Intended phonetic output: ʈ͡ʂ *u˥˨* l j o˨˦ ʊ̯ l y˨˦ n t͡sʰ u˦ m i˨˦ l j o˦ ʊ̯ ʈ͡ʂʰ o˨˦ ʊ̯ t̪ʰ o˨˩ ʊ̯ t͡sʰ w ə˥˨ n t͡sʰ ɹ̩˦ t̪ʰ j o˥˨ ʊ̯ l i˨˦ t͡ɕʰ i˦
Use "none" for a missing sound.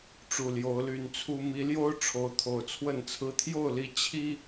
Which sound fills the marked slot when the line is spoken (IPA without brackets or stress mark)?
u˨˩